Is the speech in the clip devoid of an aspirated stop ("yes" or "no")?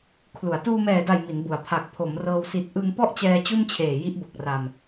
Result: no